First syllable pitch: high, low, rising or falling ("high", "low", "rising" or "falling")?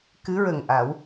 rising